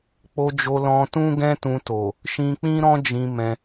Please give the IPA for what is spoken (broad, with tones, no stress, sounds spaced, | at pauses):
k͡p o˧ d͡ʒ o˧ l ɔ̃˧ t ũ˦ ɡ ɛ̃˦ t ũ˧ t o˨ | ʃ ĩ˧ k͡p ĩ˦ ɾ ɔ̃˦ d͡ʒ ĩ˧ m ɛ̃˧